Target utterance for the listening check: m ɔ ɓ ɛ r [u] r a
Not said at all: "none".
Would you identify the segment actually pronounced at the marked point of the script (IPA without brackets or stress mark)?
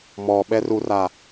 u